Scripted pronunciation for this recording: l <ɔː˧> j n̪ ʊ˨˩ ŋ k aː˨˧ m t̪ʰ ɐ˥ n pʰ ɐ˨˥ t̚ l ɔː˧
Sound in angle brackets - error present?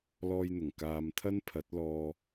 no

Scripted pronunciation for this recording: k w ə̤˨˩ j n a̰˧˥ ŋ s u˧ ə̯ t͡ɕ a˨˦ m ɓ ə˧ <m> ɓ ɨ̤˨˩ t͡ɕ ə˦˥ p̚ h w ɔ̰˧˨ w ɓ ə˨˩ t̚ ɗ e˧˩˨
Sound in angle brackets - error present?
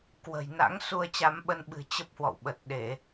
yes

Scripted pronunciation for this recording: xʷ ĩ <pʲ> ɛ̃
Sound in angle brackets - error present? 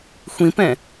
yes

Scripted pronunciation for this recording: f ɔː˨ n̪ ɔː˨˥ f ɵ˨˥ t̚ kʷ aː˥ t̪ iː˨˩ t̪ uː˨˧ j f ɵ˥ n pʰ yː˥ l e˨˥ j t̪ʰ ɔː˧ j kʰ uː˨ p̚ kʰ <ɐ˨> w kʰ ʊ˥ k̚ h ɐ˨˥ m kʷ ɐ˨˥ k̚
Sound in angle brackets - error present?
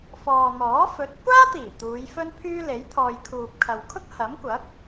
no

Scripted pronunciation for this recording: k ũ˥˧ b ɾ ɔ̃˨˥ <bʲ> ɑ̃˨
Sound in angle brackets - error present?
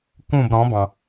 yes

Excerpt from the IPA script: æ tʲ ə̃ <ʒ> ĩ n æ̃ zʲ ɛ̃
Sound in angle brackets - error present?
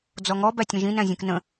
no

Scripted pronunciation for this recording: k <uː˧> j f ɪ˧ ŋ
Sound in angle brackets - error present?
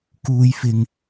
no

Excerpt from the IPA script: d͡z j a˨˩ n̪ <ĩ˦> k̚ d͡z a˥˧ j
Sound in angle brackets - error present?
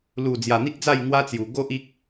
yes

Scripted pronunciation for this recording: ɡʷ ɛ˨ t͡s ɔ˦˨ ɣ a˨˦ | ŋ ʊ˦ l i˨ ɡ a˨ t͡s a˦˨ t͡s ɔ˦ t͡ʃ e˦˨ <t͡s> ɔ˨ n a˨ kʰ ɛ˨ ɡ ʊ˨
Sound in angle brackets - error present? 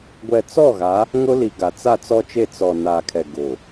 no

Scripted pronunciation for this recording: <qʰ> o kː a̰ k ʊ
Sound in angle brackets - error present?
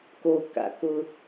yes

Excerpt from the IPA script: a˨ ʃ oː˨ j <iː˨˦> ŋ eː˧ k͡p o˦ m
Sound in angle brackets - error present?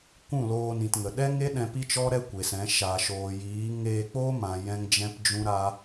no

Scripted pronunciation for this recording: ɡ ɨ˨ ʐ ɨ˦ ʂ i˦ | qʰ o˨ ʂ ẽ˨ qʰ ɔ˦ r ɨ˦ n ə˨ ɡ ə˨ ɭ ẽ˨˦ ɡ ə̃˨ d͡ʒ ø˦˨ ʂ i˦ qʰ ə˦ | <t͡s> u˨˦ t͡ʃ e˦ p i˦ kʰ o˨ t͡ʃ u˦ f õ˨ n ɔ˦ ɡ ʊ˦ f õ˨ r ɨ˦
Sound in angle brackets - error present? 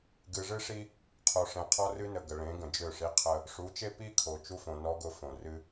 yes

